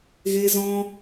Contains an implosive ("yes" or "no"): no